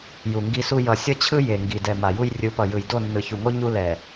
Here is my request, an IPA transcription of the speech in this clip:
j u˨ ŋ ɡ i˦ s u˦ j ʌ˨ sʲ ʌ˦ t͡ɕʰ ɯ˦ j e˨ ŋ ɡ i˨ d ɛ˨ m a˨ j u˦ j rʲ ɯ˨˦ p ʌ˨ j ɯ˨ j d o˦˨ nː ɯ˨ ç u˨ ŋ o˦ ɲ u˦ l ɛ˨

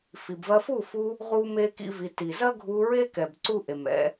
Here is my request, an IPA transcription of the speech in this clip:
f i˨ b v ɐ˧ f u˦˨ f u˧ | ʁ u˦ m e˦ k ḭ˦ v i˧ t i˨ z ɐ˦ ɡʱ u˧ ɹ e˦ k ɛ˨ b ǀ u˦ ʔ e˨ m ɛ̰˧

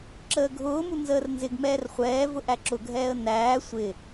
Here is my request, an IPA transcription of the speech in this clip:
ǁ əː ɡʱ ʊː m u n z əː r n z ɪ ɡ m ɛː r χʷ ɛː v ʊ ʔ æ ǁ ʊ ɡʱ ɛː ə̯ n æː sʷ ɪ

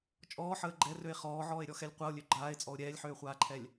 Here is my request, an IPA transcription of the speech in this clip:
t͡ʃʼ ɔː ħ əː ɡ͡ǃ ɛ r ø e̯ χ ɔː ʕ ɔː e̯ ɾʲ ɔ x ɛ lʲ qʷ a o̯ lʲ ø ɡ͡ǃ aː e̯ t͡sʼ ɔ o̯ ɾʲ ɛː lʲ ħ øː χʷ aː ǃʰ ɛ lʲ

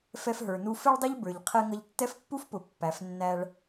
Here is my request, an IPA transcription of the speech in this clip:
f ɛ˧ f ɦ ə˞˩ n u˧ f ɪ˥ ɭ dˤ ə˥ ʎ b ə˞˩ ʎ qʰ ɛ˧ ŋ ʌ˧ ʎ tː ɛ˥ f pː u˥ f p ʊ˩ pː æ˩ f nː æ˧ ɭ

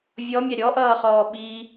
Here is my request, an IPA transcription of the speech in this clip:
vʲ ɔ mʲ a ɾʲ ɔ ʔ ʌː χ ɔː ɓ i

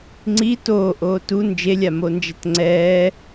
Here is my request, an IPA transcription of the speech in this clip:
ŋ͡ǀ i t oː ʔ oː t u n d͡ʒ e lʲ a m o n d͡ʒ ɛ t ŋ͡ǀ ɛː

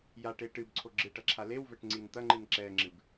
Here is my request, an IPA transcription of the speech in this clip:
j a ʈ e ʈ ɨ b ǀʰ o ɡ͡ǁ ɨ ʈ ɐ ǁʰ a l e w v ɛ ʈ ŋ͡ǀ i n t̪ ɐ ŋ͡ǃ ɨ n ǁ ɛ ŋ͡ǁ ɨ b

